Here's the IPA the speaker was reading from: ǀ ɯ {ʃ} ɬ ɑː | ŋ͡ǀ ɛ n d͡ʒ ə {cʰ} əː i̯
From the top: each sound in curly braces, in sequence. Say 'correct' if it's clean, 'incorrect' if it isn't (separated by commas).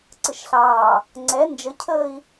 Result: correct, correct